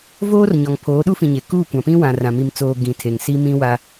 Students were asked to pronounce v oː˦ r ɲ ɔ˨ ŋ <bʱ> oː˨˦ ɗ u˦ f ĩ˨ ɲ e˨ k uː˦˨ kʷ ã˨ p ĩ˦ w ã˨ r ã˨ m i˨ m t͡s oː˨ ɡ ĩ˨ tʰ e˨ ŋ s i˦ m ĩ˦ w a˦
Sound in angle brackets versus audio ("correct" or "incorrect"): incorrect